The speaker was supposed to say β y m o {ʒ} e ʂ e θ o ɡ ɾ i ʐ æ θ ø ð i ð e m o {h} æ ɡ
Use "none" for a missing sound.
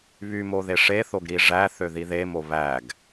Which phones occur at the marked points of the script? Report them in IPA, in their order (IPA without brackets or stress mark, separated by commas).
ð, β